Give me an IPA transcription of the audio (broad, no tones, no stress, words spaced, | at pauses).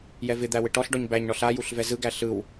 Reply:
jɛvɪd̪æ wɪʈɔɬɖɔɲ bæɲɳɔɬ ajuɬ vɛzɯɡæ ɬɯw